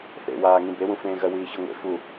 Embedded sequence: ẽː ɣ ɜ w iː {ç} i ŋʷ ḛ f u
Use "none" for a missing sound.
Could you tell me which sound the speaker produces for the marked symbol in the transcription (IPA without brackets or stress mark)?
ç